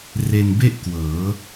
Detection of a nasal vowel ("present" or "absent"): absent